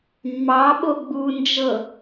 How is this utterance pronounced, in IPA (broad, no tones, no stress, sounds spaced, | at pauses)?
mː ɑ ɓ o ɡ͡b u n d͡ʒ ɤ